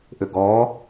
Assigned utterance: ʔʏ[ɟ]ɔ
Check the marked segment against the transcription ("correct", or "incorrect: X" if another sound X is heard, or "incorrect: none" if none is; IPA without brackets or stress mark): incorrect: ɡ